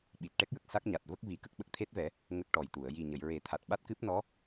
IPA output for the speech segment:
ɓ i˨˩ t̚ ʈ ɛ˦˥ k̚ j ə˨˩ k̚ s a˦˥ k̚ ɲ a˨˩ t̚ v ə˦˥ k̚ v i˨˩˦ k ə˦˥ k̚ ɓ ə˨˩ k̚ t̪ʰ e˦˥ t̚ v ɛ˨˩˦ | ŋ ə˦˥ k̚ ʈ ɔ˨˩ j t̪ u˨˩˨ ə̯ j i˨˩ ɲ ə˨˩˨ j ɹ e˨˩˦ t̪ʰ a˨˩ t̚ ɓ a˦˥ t̚ k ɨ˦˥ p̚ n ɔ˧˥

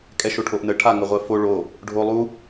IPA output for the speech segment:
kʼ ɛ ʃ o ʈʰ o ʔ n ə ʈʰ a ŋ ə ʁʷ ɛ f o ɭ o | ɖʱ o lˠ u

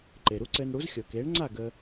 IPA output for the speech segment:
ǃ e˩ ɾ u˥ ǀ ɘː˧ n ɽ u˩˥ z xʲ ɤ˩ k eː˩˥ ɳ ŋ͡ǀ a˥˩ ɡ əː˧

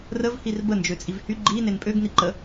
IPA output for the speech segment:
r ə v h i r b ə n d͡ʒ ø t͡sʼ i v h y ɡ͡ǃ i n e n pʼ ø ɡ n i ǃ ə

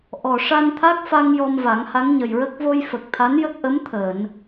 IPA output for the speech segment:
ʔ ɔ˨˩ ʂ a˧ n t̪ʰ a˦˥ k̚ f a˧ ŋ j ɔ˧ m v a˨˩˦ ŋ h a˧˥ ŋ ɲ ə˨˩ j ɹ ə˦˥ k̚ v o˧ j f ə˨˩ k̚ t̪ʰ a˧˥ n j ə˦˥ k̚ ʔ ə˧˥ m t̪ʰ əː˨˩˨ n

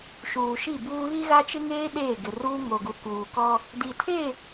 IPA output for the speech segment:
ʃ uː˨ ʃ i˦˨ b uː˦ ɣ i˦ ɣ a˦ t͡ʃ ɪ˦ ŋ eː˦ ɗ eː˦˨ ɡ ɪ˨ r uː˦ ŋ o˨ ɡ u˨ k uː˨ k ɔ˦ | d i˨ tʰ e˦˨

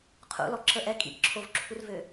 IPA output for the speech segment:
qʰ ṵ l ɔ ǁ ə ʔ ɛ kʼ ḭ ʔ ǁʰ o v ǁʰ u r v ø

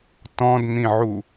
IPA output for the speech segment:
t ɔ̃ d n̪ ĩ ʕ u

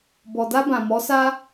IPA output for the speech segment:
b ɔ˨ d a˧ b ã˨ m ɔ˨˦ s a˦

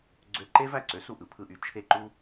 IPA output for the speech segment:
ɡ͡ǀ ø˧ ǃ e˥ v æ˥˩ ǀ ø˩˥ s u˧ ʔ ɯ˩ pʰ ɯ˥˩ ʔ y˥˩ t͡ʃʰ e˥˩ ǃ u˥

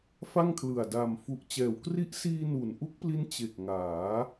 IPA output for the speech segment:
f a˥˩ ŋ kʰ l ɯ˨˩ a̯ d a˨˩ m f u˨˩ ʔ t͡ɕ ɛː˩˦ w k r i˦˥ ʔ s iː˧ n u˩˦ n ʔ u˦˥ k̚ p l i˦˥ n t͡ɕ e˨˩ k̚ ŋ aː˩˦

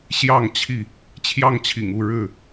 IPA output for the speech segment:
ɕ j ɑ˥˨ ŋ t͡ɕʰ i˥˨ | t͡ɕʰ j ɑ˥˨ ŋ t͡ɕʰ ḭ˨˩ ŋ u˥˨ ɻ ɻ̩˥˨

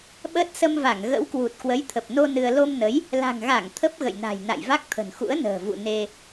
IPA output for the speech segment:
ɓ əː˦˥ t̚ s ə˧ m v a˧˩ ŋ ɣ ə̰˧˥ w k w u˨˩ t̚ k w ə˨˦ j t̪ʰ ə˨˩ p̚ n o˧ n ɨ˧ ə̯ l o˧ m n ə˨˦ j | l a̤˨˩ ŋ ɣ a˧˩ ŋ t̪ʰ ə˦˥ p̚ ɣ ə̰˧˨ j n a̤˨˩ j n a̰˧˨ j v a˦˥ k̚ t̪ʰ ə̤˨˩ n x ṵ˧˥ ə̯ n ə̤ː˨˩ v ṵ˧˨ n e˧

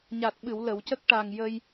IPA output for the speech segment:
ɲ a˨˩ t̚ ɓ ɨ˨˩˨ w l ə˨˩˨ w c ə˦˥ k̚ ʈ a˨˩ ŋ j ə˧ j

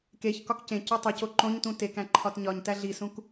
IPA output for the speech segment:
k e ç k ɒ k c ẽ c u tˤ o c o ǃ õ ɲ t ũ t e k æ̃ ǃʰ ɒ t ɲ ɒ ɲ t æ ɮ i s ũ k

